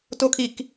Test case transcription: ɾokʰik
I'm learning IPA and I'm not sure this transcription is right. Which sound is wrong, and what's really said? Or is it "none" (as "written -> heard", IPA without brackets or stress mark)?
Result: ɾ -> t